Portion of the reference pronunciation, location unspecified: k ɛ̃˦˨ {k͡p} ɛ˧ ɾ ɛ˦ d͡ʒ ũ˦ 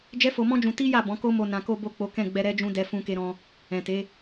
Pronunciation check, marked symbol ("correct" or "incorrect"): incorrect